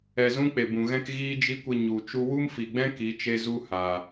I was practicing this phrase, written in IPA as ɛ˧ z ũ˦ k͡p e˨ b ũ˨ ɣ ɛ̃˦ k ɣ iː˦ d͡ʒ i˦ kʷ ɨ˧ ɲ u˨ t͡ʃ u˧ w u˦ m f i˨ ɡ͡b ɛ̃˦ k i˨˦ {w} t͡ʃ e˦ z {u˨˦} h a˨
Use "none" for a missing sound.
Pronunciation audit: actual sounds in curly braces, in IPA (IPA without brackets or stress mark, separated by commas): none, u˦